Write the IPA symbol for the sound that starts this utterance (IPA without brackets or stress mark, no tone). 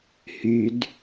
h